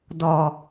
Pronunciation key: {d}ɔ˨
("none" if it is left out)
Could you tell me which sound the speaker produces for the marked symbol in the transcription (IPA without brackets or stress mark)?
d